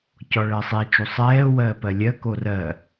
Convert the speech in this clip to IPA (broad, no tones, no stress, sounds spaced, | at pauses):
c ɔ ɭ ɜ sˤ i t͡ʃ u sˤ ɛː w ɜː p ɜ lʲ ɜ k o r ɜ